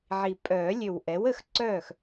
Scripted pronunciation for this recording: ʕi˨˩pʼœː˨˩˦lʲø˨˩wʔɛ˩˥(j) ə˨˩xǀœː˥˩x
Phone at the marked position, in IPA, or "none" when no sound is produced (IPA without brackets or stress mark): w